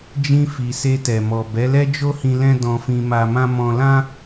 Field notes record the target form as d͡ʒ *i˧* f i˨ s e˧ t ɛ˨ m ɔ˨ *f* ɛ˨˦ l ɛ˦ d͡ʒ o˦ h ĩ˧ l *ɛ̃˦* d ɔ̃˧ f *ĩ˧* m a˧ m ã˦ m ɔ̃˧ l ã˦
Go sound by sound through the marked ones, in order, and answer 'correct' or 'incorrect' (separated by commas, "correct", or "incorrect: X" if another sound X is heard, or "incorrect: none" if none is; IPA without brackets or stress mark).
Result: incorrect: ĩ˧, incorrect: b, correct, correct